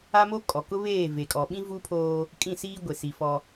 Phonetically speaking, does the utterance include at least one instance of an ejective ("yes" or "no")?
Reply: yes